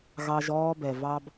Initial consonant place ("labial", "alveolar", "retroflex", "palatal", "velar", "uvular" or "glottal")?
velar